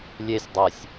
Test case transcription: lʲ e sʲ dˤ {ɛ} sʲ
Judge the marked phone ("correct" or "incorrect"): correct